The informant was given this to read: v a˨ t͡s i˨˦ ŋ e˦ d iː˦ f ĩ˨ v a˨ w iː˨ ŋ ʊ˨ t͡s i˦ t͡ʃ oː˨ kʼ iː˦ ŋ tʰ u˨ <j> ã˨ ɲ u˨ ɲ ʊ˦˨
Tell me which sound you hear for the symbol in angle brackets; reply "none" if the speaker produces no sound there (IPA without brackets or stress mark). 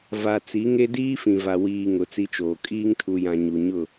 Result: j